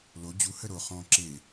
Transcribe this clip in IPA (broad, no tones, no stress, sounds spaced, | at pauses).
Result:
l o d͡ʑ u h ə ɾ o χ ɔ̃ ǁ e